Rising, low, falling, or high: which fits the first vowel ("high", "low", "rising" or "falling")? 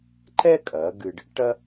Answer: high